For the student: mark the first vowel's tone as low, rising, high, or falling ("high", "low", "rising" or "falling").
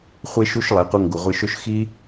high